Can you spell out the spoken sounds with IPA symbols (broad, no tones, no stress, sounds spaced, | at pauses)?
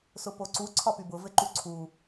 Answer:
s ʊ p o ǀ u ǀʰ ɒ p y b ʊ v ɘ ǃ u ǀʰ u